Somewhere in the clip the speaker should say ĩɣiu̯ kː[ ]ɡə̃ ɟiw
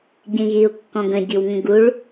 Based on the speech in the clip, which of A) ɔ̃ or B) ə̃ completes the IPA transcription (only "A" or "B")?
A